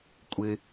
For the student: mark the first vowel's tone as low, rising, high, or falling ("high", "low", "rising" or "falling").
low